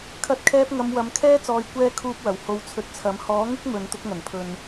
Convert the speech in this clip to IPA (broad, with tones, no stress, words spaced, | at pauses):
kʰɐ˧t̚kʰɛː˧p̚ŋɐ˨˧m wɐ˨mkʰɛː˥ t͡sɔː˨jkʷɛː˧ kʰuː˧p̚ wɐ˨˩who˨˧w t͡sʰɵ˨˥t̚t͡sʰɐ˨˥m hɔː˨˥ŋɪ˥k̚ mɵ˨nt̪ʊ˧k̚ŋɐ˨˩npʰɵ˨n